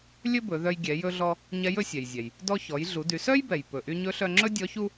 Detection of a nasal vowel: absent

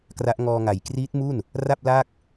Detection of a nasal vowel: absent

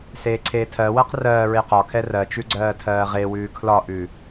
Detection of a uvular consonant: present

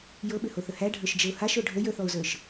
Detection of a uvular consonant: absent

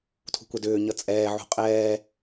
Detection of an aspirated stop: present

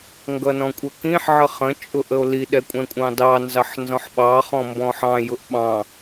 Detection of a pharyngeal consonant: present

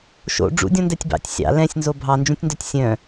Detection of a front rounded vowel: present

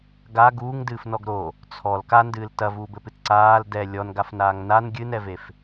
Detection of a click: present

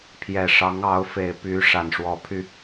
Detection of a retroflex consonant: present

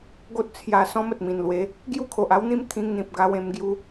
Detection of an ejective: absent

